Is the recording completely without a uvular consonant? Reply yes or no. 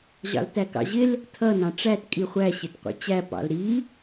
no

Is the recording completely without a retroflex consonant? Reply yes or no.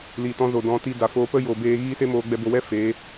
yes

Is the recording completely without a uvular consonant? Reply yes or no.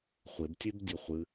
no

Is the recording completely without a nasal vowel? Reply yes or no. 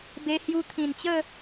no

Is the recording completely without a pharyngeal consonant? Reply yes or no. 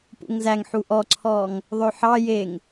no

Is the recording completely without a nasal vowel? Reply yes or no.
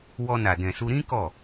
no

